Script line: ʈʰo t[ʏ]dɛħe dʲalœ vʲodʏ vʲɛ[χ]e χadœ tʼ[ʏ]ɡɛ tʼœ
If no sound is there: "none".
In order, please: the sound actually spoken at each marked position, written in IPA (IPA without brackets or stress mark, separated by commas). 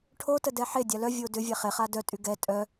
ə, χ, y